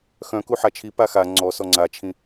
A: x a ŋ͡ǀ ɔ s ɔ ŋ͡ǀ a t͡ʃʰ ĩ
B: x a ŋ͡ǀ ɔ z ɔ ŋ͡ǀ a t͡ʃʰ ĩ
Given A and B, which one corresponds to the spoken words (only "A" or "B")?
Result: A